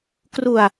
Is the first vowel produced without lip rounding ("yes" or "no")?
no